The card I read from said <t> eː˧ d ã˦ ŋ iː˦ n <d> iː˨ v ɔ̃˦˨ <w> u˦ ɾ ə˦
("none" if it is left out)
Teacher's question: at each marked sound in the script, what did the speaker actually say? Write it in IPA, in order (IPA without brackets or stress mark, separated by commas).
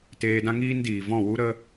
t, d, w